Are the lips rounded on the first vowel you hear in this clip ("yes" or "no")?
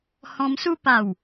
yes